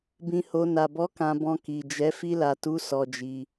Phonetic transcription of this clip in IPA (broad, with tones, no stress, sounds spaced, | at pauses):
b ĩ˧ h o˧ n a˨ b ɔ˨˦ k ã˧ b ɔ̃˧ k i˨ d͡ʒ ɛ˨˦ f i˧ l a˨ t u˨˦ s ɔ˧ d͡ʒ i˧